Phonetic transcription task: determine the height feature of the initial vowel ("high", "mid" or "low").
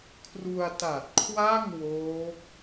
high